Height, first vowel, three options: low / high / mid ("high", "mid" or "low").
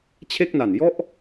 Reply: mid